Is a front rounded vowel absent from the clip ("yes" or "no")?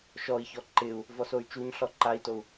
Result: no